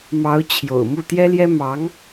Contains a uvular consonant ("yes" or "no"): no